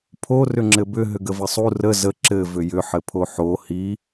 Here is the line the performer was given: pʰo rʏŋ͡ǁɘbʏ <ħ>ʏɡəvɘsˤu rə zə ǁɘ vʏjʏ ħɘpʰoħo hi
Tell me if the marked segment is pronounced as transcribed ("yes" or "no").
no